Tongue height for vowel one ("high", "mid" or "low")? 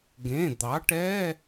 mid